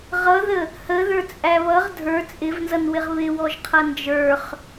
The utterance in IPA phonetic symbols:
ʁʌðə | həðə˞t͡sʼæ βʌʁ dʱə˞ t͡sʼɪvnzʌnwɪʁ βɪwɔʒqʰʌ nd͡ʒə˞χ

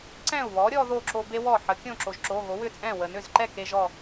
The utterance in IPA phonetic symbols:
ǀɛ̃˥˩u̯βɔ˩˥ɾʲɔ˧ ðo˥˩ǁo˧be˥ wɔ˥˩ħə˩˥ kʲõ˥˩ǁo˩ʒǁo˩˧˩ ɣo˩˥wʏ˥˩t͡sʼɛ̃˥˩ wə˩nʏ˥˩zǃɛ˥˩ ke˥ʒɔ˥˩

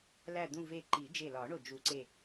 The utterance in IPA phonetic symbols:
læ˧˩d̪ũ˧˩ve˧˩ ǃi˨˩˦d͡ʒe˧˩lɒ˨˩˦ɳo˧˩ d͡ʒu˨˩˦ǀe˧˩

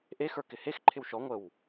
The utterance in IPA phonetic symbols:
ʔexə˞ kɪhexǃʰɪw ʃɔ ŋʷəw

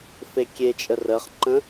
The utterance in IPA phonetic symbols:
fekʲet͡ʃʼə rəχǃə̃

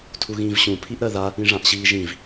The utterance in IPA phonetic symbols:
tʰuɣĩːvɕũ pʰiʔɾɜða | ĩʐãʔɕiːʒĩv

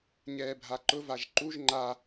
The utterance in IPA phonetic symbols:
ɲɛːbʱaǃʊ vaʒǃuʒ ŋ͡ǃa

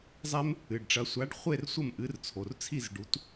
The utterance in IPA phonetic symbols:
zˤɛ˦m | ɨ˩˧˩ɖʈ͡ʂɐ˨˥ sʷa˨˥ɖχʷe˥˨r sʷɐ˥˨mʔɨ˨˥rt͡sʰo˩˧˩r t͡sʰi˥˨zɖu˨˥t

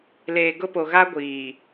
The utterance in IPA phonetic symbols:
leː˨ɡʊ˦po˨ ɣa˦ɡʷiː˨

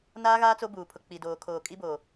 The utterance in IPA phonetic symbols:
naː˦ɣaː˦ t͡so˦ buː˨pʰʊ˨ k͡pi˨doː˨ kʰoː˨kʼi˦boː˨

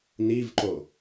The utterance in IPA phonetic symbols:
nivǃo

